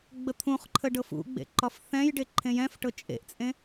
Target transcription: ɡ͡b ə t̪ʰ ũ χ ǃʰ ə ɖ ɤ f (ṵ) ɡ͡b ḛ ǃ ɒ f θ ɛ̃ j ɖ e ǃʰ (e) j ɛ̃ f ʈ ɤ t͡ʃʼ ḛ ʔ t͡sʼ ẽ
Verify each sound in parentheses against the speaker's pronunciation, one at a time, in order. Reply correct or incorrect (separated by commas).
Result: correct, incorrect